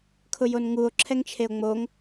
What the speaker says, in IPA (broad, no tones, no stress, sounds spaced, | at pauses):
kʰ ʊ j o n ŋ u o̯ ǁʰ ɛ ŋ t͡ʃʰ e o̯ ŋ͡m o ŋ